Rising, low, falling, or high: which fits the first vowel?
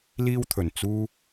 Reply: high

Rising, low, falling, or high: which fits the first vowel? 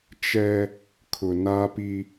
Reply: high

